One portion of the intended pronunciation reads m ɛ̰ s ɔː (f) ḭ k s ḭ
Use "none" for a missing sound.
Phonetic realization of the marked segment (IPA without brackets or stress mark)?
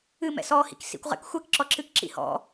h